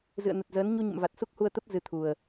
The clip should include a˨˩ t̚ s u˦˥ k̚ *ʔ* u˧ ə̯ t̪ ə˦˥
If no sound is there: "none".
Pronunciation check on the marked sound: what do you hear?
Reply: h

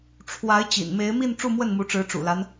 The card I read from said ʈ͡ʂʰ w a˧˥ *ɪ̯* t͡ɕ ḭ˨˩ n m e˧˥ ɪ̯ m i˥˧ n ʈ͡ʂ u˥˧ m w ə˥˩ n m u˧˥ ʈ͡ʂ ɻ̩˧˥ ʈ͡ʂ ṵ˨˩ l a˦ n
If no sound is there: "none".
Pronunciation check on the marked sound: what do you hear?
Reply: ɪ̯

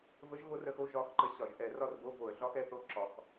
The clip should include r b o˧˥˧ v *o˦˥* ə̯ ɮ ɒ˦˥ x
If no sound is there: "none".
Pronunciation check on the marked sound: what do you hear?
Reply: o˧˩˧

